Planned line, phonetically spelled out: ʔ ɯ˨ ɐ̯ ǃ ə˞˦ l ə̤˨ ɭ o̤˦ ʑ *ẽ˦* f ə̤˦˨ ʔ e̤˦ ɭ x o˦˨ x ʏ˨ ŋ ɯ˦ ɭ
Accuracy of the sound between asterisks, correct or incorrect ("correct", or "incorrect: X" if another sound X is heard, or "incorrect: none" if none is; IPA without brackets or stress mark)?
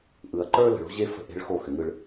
incorrect: e˦